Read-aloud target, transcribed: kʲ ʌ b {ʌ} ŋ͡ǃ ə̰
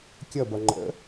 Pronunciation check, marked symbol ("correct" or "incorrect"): correct